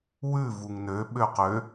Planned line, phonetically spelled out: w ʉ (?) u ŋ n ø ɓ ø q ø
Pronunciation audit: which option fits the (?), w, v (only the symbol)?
v